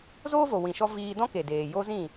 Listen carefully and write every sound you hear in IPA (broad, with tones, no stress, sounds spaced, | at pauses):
z oː˦ v o˨ w ĩ˧ ʃ ɔ˦ v iː˧ d ɔ̃˦ k e˨ d eː˨ j o˦ z ĩ˦˨